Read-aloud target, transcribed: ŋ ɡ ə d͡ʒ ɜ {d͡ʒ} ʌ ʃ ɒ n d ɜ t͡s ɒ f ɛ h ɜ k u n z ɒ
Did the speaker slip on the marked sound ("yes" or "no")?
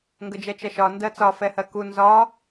yes